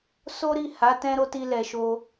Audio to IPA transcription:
s o˦ ɾ i˦˨ h a˨˦ t ɛ̃˦ ɾ o˦ t i˧ l ɛ˨ ʃ o˧

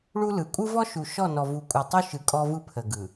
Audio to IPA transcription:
ɭ u˦ l ɯ˨ kʷʼ ɯ˦ v ɔ˦ ʃ u˨ ʃ ɔ˦˨ n ɔ˨ v u˨˦ kʷʼ ɯ˨ tˤ u˦ ʃ ɯ˨ kʼ ɔ˦ v ɯ˦ pʰ ə˨ ɡ ɯ˨

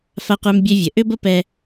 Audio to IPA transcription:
f a˧ qʷ ɛ˧ m bʲ ɛ˧ vʲ ə˩ ʔ ʏ˥ b ə˥ p ɛ˥

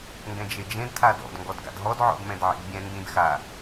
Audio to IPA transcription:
ŋ ɡ ɛ̃ d͡ʒ e d͡ʒ ẽ d tʰ a d ɔ̰ d ŋ ɡ ɔ d ɡ a̰ d ɦ ɔ d ʕ ɔ̰ d m ɛ̃ d ʕ ḛ d bʲ ɛ̃ n d ĩ d x a

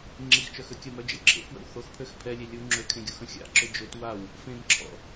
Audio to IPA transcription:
ŋ͡ǁ i x t͡ʃ œ x ø kʲ ə m œ d͡ʒ ə̰ j ǁʰ ḛ f w ə̰ w θ o x pʰ ø x pʰ ɛ lʲ e lʲ u ŋ͡ǁ ø kʰ ẽ ɡʲ u x ə̃ xʲ a̰ ǁ ø d͡ʒ ø t w a w | f ẽ m ǁʰ ɔ̰

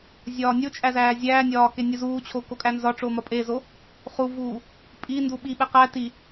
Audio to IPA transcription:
zʲ ɒː nʲ o t͡ʃʼ æ z æː zʲ æː nʲ ɒː k e nʲ u z uː t͡ɕʰ o k o kʼ æ n z ɒ ʈ͡ʂ o m ɒ pʼ e z o | χ u v uː | pʼ i n d u ɓ i ɓ e q æ t i

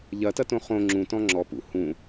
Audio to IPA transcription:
ʎ ɐ t ɐ t õ χ õ ŋ͡ǁ ũ t ɔ̃ ŋ͡ǁ ɔ p ṵ h ũ

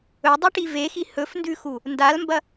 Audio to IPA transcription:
ɵ dˤ u ʈ i v e x i h ɵ f n d ʉ x u | n d a l m b ɐ

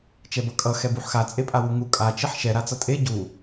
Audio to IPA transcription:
t͡ʃ ɛ b ʌ kʼ ʌ x ɛ b u ħ x a t͡sʼ e pʼ a w u ŋ u kʼ a t͡ʃ e ħ ʃ ɛ ɾ a t͡s ʌ tʼ e ɟ u

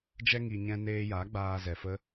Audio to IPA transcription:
d͡ʒ ɛ˧ ŋ i˨ ɲ ɛ̃˧ n eː˧ j aː˨˦ ɡ͡b aː˧ z ɛ˨ f ə˦

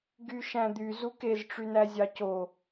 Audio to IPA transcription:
ɡ y ʃ æ̃ d̪ y z u k e z ʈ͡ʂ y n æ zʲ ɑ c o

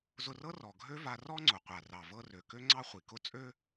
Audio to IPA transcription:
z ʊ˧ r ɤ˥ r ɔ˩ ɡʱ ø˥ v a˧ r ɔ˥ ŋ͡ǀ ʊ˩ qʷ a˩ r ɑ˩ v ɤ˧ r ø˩ k ø˥ ŋ͡ǀ ɑ˥ χʷ i˩ k ʊ˥ t͡sʼ ø˥

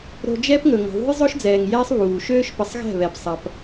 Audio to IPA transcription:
ɾ o̤˧ d͡ʒ ɛː˦ p ŋ ɵ˨ ŋ ə̤˨ ðˤ ṳ˦ j zˤ ɵ˦ ʃ d͡z ɛː˨ ŋ j ɛː˦ sˤ β uː˨ ʃ øː˦ ʃ p ə˨˦ sˤ ɣ ɛ̤˦˨ β ɛ˨ b sˤ ɐ˧ p

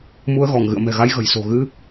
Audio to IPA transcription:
m u˧ ə̯ ɣ ɔ˧˩ ŋ ɣ ɨ̰˧˨ ə̯ m ɛ̤˨˩ ɣ a˧ j ɣ ə̤˨˩ j s o̤˨˩ ɣ ɨ˧

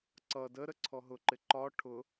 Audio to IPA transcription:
ǀ ʌ d ə ɾ ə ǀʰ ɔ ɦ ʊ ǃ ɪ ǃ ɒ ʈʰ ʊ

